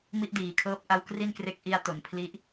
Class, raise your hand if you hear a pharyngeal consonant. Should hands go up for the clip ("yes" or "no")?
no